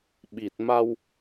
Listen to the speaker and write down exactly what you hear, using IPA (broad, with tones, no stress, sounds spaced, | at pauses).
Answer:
ɓ i˨˩ t̚ m a˧ w